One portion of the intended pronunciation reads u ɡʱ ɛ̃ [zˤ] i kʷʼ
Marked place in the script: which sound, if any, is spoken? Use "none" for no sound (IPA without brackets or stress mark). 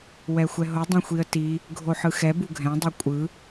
dˤ